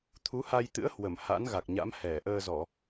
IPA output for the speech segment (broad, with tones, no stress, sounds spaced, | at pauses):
t̪ʰ u˨˦ h a˧ j t̪ ɨ̰˧˥ ə̯ h w ə˧˩ m h a̰˧˥ n ɣ a˨˩ k̚ ɲ a̰˧˥ m h ɛ˧˩ ʔ əː˧ z ɔ˧˩˨